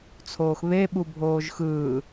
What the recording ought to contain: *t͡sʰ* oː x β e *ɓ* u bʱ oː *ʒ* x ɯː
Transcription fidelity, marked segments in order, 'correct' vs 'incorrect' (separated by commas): correct, correct, correct